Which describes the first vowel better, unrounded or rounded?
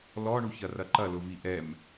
rounded